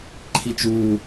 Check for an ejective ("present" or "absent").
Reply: absent